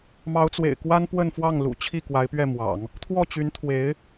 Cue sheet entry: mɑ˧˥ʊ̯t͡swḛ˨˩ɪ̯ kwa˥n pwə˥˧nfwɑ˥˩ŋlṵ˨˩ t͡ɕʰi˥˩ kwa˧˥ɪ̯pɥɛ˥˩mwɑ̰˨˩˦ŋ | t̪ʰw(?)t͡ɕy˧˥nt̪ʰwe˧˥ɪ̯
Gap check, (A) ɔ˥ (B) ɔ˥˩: B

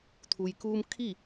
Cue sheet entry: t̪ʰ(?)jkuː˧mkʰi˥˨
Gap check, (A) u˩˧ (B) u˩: B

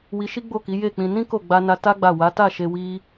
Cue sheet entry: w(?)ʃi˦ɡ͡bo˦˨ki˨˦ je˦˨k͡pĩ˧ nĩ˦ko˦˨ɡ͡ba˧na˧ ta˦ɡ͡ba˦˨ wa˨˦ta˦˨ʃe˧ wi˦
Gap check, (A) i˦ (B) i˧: B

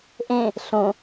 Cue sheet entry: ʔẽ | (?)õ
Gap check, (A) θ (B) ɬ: B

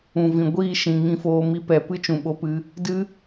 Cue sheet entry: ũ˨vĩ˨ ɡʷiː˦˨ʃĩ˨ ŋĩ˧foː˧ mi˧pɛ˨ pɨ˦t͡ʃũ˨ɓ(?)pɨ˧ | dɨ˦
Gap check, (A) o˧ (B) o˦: A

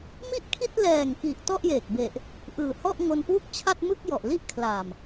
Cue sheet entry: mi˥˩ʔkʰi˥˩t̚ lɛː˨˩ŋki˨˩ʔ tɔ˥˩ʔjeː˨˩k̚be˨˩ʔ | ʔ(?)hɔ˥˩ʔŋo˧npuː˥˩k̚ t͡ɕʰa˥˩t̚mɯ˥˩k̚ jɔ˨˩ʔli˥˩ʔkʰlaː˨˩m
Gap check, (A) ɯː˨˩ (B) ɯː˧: A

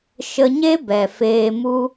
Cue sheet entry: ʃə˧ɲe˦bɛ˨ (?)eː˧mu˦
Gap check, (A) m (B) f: B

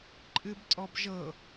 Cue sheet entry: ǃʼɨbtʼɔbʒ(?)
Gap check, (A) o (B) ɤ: B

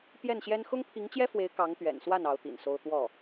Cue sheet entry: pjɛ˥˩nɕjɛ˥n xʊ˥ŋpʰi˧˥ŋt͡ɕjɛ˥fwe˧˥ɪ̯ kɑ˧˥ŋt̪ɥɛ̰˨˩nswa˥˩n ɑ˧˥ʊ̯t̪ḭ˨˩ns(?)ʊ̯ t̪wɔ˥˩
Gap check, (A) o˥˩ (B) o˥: B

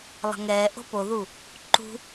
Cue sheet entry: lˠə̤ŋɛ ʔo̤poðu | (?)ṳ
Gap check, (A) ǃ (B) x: A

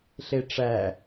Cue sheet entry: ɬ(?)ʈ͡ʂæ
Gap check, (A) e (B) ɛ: A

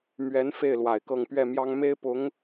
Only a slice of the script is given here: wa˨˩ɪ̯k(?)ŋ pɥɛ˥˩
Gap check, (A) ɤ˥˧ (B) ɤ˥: A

